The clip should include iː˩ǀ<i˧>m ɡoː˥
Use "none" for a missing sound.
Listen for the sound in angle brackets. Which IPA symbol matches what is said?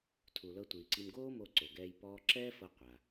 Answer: i˧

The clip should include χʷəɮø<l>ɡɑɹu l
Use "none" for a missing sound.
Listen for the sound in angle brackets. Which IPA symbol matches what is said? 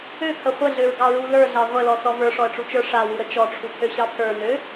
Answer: ɹ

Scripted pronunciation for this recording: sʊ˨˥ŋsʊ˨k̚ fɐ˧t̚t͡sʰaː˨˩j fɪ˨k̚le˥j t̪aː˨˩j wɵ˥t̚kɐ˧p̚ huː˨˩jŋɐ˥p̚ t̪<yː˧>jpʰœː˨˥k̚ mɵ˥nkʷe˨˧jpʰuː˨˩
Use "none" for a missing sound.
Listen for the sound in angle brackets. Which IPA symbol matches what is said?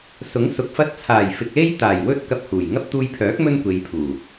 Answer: uː˧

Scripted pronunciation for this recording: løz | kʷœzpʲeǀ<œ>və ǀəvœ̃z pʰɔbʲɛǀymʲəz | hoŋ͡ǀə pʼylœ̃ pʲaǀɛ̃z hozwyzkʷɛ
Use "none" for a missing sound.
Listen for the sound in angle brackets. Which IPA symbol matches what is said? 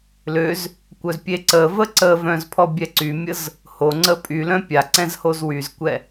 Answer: ə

